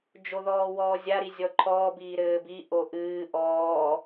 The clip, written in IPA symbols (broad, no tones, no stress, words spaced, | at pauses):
d͡ʒoðɔːwɔːzʲa ɾizʲɔǃʰɔː biːɾɘːbi ʔoʔɨː ʔɔː